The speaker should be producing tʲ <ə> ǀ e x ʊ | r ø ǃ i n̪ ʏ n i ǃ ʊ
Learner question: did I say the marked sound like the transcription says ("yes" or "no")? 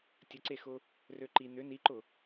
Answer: yes